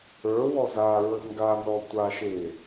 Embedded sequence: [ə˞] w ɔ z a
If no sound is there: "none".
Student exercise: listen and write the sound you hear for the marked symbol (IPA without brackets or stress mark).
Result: ə˞